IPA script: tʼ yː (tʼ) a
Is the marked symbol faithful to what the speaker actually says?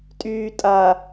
yes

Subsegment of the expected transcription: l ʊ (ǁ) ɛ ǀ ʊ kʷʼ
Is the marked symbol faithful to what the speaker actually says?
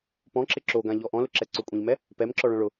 yes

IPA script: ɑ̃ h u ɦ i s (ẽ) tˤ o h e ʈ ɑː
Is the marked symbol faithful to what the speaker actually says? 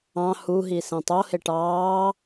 yes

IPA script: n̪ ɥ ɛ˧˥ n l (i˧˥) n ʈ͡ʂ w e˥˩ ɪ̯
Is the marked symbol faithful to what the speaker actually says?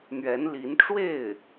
yes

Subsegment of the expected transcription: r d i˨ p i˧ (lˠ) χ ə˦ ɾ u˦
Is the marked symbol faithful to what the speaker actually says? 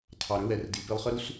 yes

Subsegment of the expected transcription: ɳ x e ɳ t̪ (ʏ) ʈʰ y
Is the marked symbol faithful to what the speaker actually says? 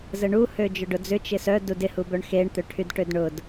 yes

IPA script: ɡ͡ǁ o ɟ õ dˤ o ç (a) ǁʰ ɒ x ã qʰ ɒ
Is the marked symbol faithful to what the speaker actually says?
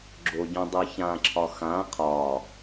no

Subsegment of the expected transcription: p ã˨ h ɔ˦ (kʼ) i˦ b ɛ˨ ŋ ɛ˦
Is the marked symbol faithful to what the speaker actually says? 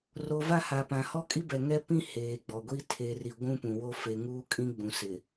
yes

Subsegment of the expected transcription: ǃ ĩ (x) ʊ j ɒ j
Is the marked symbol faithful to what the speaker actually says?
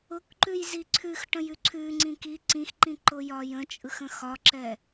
no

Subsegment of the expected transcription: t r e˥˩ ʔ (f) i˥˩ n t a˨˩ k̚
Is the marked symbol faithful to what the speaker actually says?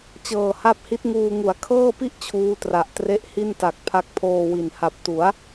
no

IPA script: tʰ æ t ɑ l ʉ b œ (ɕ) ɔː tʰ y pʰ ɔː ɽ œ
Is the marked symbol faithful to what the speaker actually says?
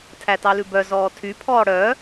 no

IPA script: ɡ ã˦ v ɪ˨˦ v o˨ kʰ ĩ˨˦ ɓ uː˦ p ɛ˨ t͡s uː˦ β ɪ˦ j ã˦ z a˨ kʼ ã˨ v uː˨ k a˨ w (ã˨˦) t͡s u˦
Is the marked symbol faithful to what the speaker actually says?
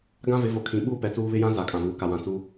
no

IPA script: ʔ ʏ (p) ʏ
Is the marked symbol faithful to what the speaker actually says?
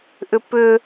yes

